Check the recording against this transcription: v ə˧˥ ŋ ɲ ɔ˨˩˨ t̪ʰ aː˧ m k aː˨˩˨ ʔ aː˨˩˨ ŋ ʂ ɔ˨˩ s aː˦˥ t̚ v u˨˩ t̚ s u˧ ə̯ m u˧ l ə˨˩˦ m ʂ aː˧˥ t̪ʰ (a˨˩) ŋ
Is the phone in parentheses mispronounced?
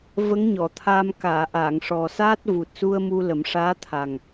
no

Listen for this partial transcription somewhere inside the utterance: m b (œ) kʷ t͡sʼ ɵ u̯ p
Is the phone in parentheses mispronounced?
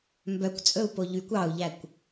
no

